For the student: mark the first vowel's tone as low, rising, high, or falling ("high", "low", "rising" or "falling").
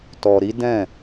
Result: low